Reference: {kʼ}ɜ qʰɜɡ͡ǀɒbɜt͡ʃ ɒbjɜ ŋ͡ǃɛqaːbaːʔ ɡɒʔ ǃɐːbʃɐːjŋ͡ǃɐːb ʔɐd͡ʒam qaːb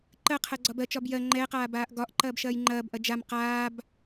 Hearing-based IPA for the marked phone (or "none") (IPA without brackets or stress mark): ǃ